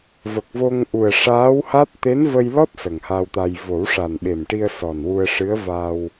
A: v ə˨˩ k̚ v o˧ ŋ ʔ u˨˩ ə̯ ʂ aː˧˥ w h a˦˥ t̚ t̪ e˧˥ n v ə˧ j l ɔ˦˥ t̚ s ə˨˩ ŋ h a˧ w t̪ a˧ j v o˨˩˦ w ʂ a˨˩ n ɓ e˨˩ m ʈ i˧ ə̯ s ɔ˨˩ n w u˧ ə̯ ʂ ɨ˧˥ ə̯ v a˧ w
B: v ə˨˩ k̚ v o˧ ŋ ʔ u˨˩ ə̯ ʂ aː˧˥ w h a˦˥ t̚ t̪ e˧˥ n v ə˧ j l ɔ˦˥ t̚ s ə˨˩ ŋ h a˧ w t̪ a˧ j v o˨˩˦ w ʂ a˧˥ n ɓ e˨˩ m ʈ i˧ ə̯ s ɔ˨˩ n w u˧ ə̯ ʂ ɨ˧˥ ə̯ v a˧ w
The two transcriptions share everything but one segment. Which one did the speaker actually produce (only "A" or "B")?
A